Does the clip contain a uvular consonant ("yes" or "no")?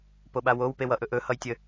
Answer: no